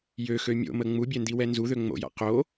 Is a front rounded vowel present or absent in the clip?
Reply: present